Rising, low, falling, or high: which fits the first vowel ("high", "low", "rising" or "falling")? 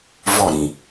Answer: falling